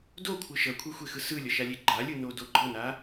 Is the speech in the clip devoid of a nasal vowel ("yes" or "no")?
yes